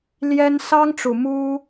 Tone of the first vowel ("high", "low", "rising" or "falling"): high